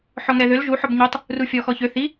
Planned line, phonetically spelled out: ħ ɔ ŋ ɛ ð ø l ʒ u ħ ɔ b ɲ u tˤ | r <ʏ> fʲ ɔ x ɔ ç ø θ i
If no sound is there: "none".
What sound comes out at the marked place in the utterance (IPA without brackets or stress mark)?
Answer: u